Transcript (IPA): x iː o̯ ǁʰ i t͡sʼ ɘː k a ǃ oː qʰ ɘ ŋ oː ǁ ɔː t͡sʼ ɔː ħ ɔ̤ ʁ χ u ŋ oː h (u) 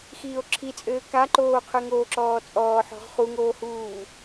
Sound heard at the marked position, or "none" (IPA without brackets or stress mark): uː